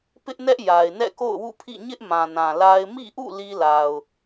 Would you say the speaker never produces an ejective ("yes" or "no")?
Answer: yes